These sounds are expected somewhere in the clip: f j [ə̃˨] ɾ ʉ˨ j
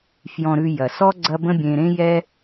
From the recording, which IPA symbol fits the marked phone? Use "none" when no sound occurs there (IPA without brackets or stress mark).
ɔ̃˨